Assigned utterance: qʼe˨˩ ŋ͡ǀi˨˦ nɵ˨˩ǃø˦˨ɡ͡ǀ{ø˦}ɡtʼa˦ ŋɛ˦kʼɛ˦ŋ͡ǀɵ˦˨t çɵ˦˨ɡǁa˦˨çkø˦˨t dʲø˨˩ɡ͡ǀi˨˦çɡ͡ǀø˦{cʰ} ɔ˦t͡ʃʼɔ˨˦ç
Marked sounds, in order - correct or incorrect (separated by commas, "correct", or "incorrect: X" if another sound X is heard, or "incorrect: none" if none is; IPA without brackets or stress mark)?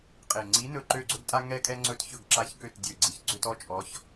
incorrect: ɵ˦, incorrect: t